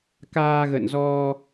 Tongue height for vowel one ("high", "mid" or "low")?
low